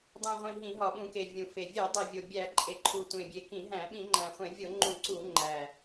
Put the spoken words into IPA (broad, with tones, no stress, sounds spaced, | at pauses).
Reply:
dˤ ũ˨˩ ʁʷ ĩ˨˩ ɦ ĩ˧˩˧ ɦ ɒ˨˩ ɓ ũ˧˩˧ k e˨˩ vʲ ũ˨˩ f e˨˩ vʲ e˧˩˧ dˤ e˨˩ vʲ o˨˩ bʲ æ˧˩˧ ǃʼ e˨˩ ǃʰ u˨˩ tʷ ẽ˨˩ bʲ e˨˩ k ĩ˧˩˧ ɦ æ̃˧˩˧ ɓ ĩ˧˩˧ ŋ͡ǃ æ̃˨˩ χʷ ẽ˧˩˧ vʲ o˧˩˧ ŋ͡ǃ ũ˧˩˧ ǀ u˧˩˧ ŋ͡ǃ æ˨˩